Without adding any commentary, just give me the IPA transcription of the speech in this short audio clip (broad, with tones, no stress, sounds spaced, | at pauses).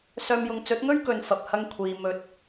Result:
s œː˧ m j ʊ˧ ŋ t͡s ɵ˨˥ t̚ ŋ ɵ˥ ɥ k ɵ˨ n f ɐ˨ p̚ h ɐ˧ ŋ kʷʰ iː˨ m ɵ˨˥ t̚